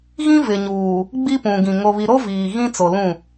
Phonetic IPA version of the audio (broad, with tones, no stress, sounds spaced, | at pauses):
ɣ ĩ˦ v ɪ˨ ɲ uː˨ | ɡ͡b i˦ p ũ˨ ɡ ĩ˨ ŋ o˨ β i˨ ɾ o˦ v iː˨ ɣ ĩ˦ t͡s o˨ l ũ˦˨